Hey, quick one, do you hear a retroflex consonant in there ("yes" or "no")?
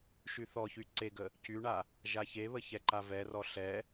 yes